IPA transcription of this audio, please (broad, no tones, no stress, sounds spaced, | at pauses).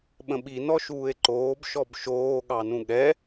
ɓ ə̃ ɓ i n ɔ ʃ uː e̯ ǃ oː b ʃ ɔ b ʃ oː ɠ ɑ n ũ ɠ ɛ